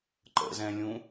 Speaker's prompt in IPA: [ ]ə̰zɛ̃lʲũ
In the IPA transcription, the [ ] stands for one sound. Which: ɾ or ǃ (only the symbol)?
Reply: ǃ